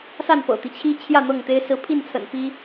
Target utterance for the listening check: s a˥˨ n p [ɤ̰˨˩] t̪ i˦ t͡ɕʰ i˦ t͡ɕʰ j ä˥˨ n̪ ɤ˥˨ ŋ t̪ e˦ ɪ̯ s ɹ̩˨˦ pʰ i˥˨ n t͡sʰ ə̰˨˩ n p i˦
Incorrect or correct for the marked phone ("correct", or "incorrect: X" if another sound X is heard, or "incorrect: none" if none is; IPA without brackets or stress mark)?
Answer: correct